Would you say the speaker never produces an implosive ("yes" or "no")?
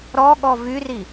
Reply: no